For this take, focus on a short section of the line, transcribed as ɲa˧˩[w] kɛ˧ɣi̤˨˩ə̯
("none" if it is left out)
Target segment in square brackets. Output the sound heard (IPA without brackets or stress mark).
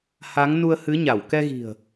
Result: w